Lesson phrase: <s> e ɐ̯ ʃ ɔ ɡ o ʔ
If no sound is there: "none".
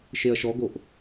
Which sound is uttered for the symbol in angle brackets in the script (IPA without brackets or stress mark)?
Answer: ʃ